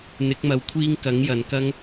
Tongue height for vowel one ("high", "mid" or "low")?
high